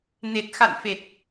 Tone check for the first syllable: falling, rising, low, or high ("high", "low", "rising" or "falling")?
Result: low